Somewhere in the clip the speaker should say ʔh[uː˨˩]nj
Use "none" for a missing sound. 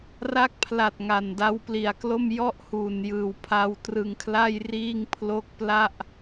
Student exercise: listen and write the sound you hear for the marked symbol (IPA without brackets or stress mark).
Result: uː˨˩